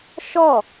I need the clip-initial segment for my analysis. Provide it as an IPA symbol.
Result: ʃ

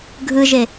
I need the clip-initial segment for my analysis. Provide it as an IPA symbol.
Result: ɡʱ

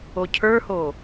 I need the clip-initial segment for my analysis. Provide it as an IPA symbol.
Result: o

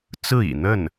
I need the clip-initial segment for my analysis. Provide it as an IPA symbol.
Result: t͡s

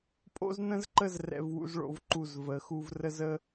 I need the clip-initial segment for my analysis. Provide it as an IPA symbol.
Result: pʼ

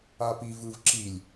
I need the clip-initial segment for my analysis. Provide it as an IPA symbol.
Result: a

